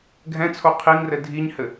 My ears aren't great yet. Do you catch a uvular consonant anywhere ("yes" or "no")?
yes